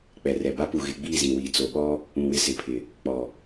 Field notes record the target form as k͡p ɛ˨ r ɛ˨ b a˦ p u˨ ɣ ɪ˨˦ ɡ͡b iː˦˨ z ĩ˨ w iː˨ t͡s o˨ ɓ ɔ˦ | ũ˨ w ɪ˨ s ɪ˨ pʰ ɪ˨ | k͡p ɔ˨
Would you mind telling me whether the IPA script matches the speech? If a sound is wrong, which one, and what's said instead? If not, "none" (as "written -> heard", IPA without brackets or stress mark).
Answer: none